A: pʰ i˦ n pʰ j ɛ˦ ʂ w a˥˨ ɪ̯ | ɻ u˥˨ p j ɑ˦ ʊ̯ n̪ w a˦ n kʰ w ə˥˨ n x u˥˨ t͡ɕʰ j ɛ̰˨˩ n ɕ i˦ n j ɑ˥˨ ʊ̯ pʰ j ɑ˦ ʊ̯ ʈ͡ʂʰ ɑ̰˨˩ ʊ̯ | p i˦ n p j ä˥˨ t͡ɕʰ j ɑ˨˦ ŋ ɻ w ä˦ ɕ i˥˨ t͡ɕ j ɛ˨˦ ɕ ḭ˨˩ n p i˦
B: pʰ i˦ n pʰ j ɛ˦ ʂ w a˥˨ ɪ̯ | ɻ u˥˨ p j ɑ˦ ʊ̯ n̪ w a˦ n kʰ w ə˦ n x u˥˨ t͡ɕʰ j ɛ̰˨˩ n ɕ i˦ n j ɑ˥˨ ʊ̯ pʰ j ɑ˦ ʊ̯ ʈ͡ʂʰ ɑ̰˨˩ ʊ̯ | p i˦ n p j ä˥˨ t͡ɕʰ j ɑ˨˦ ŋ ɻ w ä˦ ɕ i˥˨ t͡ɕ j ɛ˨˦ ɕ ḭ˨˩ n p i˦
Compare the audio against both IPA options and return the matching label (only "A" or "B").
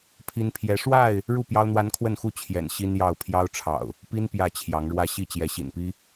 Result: A